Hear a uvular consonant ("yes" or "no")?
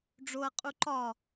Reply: yes